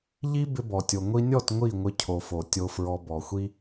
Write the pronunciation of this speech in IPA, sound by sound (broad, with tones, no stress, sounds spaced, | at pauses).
ʎ i˦ b ɪ˧ b ɔ˨ tʲ o˨ ŋʷ i˧ nʲ ɔ˦˨ t ŋʷ i˦˨ ŋʷ ɪ˧ cʰ o˨ f o˨ tʲ o˧ f ɹ ɔ˧ b ɔ˨ xʷ i˦